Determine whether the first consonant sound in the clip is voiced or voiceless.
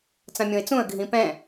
voiceless